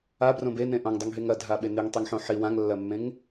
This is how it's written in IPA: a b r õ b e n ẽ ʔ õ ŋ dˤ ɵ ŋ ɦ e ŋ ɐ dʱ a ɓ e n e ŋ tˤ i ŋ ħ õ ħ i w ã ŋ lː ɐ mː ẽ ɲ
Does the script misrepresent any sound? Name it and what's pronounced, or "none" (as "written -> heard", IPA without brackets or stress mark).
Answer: ɲ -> ŋ